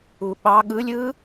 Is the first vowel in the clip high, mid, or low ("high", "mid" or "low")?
high